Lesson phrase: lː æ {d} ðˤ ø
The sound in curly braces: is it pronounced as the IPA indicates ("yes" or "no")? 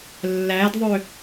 yes